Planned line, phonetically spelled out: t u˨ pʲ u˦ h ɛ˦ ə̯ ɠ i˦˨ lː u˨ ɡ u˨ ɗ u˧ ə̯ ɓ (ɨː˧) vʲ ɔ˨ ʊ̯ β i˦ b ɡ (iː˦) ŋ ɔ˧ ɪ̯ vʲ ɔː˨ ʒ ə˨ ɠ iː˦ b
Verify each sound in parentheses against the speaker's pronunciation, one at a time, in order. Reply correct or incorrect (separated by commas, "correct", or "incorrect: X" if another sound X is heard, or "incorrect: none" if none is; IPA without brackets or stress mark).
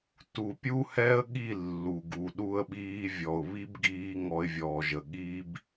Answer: incorrect: iː˧, correct